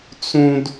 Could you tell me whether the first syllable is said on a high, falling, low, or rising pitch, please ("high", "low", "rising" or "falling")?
high